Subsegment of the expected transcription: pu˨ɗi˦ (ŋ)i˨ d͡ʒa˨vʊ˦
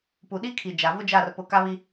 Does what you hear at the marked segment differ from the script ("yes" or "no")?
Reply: yes